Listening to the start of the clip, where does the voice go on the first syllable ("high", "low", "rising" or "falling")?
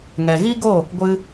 low